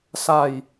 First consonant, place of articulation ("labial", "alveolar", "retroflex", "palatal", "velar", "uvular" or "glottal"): alveolar